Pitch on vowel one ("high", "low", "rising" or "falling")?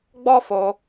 high